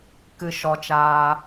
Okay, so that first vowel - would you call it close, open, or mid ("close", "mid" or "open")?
close